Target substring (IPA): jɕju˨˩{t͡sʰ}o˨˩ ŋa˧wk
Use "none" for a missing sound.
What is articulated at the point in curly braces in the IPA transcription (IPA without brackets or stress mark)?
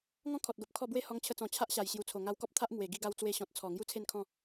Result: t͡sʰ